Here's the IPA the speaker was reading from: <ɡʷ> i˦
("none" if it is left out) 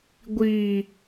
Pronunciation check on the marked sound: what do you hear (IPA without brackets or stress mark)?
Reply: ɡʷ